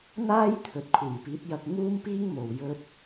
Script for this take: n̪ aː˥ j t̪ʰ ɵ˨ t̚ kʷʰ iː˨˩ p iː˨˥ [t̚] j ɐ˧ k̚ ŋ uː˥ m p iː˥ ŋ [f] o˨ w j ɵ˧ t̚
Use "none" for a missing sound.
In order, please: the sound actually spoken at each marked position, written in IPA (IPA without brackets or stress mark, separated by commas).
t̚, m